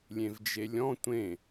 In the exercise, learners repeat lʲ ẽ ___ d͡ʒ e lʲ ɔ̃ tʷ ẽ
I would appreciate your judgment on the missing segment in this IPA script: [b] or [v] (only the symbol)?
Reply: v